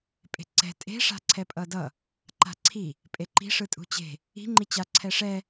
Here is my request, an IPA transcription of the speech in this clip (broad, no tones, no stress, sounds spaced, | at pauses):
pʼ e̤ ǀ ɛ̤ tʼ e̤ ʂ a̤ ǀʰ ɛ pʼ ʌ d ʌ | ǃ a̤ ǀʰ i | pʼ e ǃ i̤ ʂ ɯ tʼ ṳ t͡ɕ e̤ | i̤ ŋ͡ǃ i t͡ɕ a ǀʰ ɛ ʂ ɛ